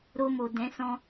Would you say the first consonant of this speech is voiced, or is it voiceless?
voiced